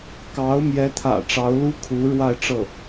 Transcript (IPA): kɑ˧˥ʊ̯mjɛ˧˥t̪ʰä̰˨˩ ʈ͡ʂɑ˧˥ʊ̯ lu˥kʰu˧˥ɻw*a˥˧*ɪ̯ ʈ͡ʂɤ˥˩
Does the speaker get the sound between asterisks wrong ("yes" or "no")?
no